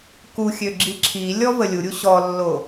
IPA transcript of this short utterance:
kuxʲø ɡ͡ǁiǁʰilʲɔ vəlʲuɾʲu ɕɔlːo

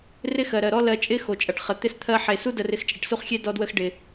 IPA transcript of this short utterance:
rɪ˦xɜ˨ɾɜ˨ɾɔ˦ lɜ˧ t͡ʃʼɪ˦ xo˨t͡ʃʼʌ˨ʈχə˨ t̪ɪ˧st̪ʰɜ˧ħe˨su˦ də˧rɪ˧x t͡ʃʼɪ˨ʈsu˦˨χxʲe˦ dɔ˦dwə˦x ɖɪ˨

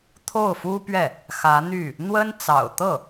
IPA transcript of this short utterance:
t̪ʰo˥˩ʊ̯fu˥pɥɛ˥˩ | xä˧˥n̪y˥˩ | n̪wə˥nt͡sɑ̰˨˩ʊ̯ t̪ɤ˥˩

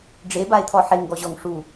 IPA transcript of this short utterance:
ɖ͡ʐebae̯t̪ʰɔ ħeŋɡɔʑɔŋ ʂu

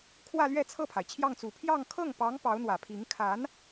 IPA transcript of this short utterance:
kʰwä˥˧lɥɛ˥˧ t͡sʰɤ˥˩pʰa˩ɪ̯ t͡ɕʰjɑ˥˩ŋt͡su˨˩ pʰjɑ˥˧ŋ kʰɤ˥˩ŋpɑ˧˥ŋ pɑ˧˥ʊ̯n̪wä˨˩pʰi˧˥ŋ kʰa˧˥n

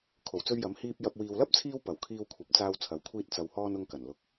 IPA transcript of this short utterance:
kʰo˨˩wt͡sɵ˧ɥjɐ˨˥m hiː˧p̚ jɐ˨p̚ wiː˨wlɐ˥p̚t͡sʰiː˧w pɐ˨˩wkʰiː˧wkʷʰɐ˨˥p̚ t͡saː˧wt͡sʰɐ˨˥w kʷʰiː˧t̚ t͡sɐ˨whɔː˧n ʊ˧ŋkɐ˨˩n lʊ˨k̚

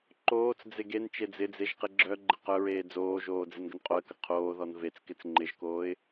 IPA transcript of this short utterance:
ǃoːt͡sd͡ze ɡen t͡ʃed͡zɪd͡zeʒ qeɡ͡ǁœɡ͡ǃɪ qœɹeː d͡zoːʒoː d͡zenɡənqʼoə̯kə qʰoːðɔn vet͡skɪt͡s ŋ͡ǃɪʒkoːɪ̯

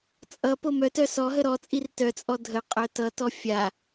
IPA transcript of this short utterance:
t͡sʼʌ pomœtœ sɔɦə ɾɔt͡sʼir tœt͡sʼɔ dʱə qʼœtʌtɔ fʲa

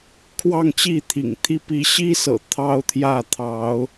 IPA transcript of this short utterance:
kʰwɑ˥˨ŋt͡ɕi˥˨t̪ʰḭ˨˩ŋt̪ʰi˦ pi˨˦ɕi˦sɤ̰˨˩ t̪ʰɑ˦ʊ̯t̪ʰjä˥˨ t̪ʰɑ˨˦ʊ̯

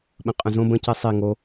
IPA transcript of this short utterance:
ɓə̃qʼə̃zõ bə̃ cisˤi ŋo

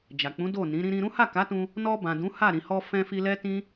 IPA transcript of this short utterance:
d͡ʒa˨k͡pũ˨˦do˦˨nĩ˨˦ ɾĩ˧ɾĩ˧ɾũ˦ ha˦˨ka˨˦tũ˧ | nɔ˧bã˨ dũ˨˦ha˦˨ ɾĩ˨hɔ˧fɛ̃˧ fi˧lɛ˦ tĩ˦

